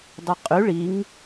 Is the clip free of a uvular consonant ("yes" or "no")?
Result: no